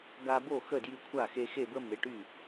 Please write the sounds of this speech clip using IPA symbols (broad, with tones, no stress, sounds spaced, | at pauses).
ɡ a˧ b o˥˩ x ə˥˩ d j y˧ kʷʰ a˥˩ x e˧ x e˥˩ b ə˥ m e˩˥ ʈ y˥˩